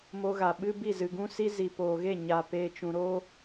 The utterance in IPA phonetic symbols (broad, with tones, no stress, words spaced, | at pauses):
mo˧ɣa˨ ɓɨ˧ bi˦˨zɨ˨ɡũ˦si˦ zi˨poː˨ɣe˦˨ ɲa˨ peː˨t͡ʃũ˨ɾo˦